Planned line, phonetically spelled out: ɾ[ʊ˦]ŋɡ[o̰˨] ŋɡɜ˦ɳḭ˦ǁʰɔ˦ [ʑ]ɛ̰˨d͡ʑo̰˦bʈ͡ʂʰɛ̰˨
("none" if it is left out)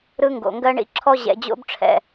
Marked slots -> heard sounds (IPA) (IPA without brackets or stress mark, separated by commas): ɯ˦, o̰˨, ʑ